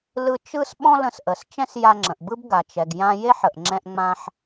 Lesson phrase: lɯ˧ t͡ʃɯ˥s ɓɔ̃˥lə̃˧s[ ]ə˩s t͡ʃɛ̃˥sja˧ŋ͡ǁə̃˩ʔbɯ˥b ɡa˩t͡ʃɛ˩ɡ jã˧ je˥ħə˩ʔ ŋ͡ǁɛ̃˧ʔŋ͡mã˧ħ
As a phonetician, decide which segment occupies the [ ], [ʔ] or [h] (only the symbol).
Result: ʔ